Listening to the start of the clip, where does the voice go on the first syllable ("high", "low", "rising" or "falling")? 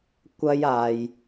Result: high